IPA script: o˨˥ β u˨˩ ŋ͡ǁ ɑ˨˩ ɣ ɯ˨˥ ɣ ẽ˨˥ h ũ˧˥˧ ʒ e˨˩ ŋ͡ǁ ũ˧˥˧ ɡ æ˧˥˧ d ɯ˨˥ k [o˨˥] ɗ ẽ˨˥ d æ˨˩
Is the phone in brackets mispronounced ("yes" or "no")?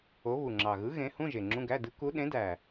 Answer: yes